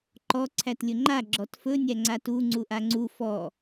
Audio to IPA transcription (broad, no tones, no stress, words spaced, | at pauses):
ǃɔ ǀʰætlʲɵŋ͡ǃa ɡ͡ǁɔtfɵ nʲæŋ͡ǀatu ŋ͡ǀuʔaŋ͡ǀu fɔ